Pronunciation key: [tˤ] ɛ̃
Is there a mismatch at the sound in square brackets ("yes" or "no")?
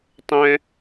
no